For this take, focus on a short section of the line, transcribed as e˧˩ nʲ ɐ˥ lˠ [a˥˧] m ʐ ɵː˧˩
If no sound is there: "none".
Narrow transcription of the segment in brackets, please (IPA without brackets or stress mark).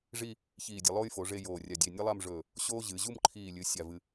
a˥˧